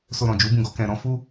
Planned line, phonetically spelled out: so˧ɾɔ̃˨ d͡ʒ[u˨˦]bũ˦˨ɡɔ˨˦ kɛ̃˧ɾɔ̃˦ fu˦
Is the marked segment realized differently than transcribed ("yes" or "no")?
no